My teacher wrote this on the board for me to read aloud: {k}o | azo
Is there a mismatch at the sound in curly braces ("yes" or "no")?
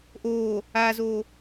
yes